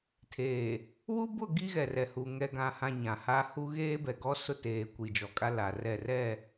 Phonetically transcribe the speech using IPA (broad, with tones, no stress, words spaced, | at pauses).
tʰeː˨ | wu˦bʊ˦˨ ɡi˦ɣɛ˨rɛ˨hu˨ ŋɛ˨ɡã˨hã˨ ɲã˨ha˦ hu˦ ɣeː˦bɛ˨ɡɔ˦ sʊ˦teː˨ kʷi˨d͡ʒɔ˨kʼa˦ la˨rɛ˦˨rɛ˦˨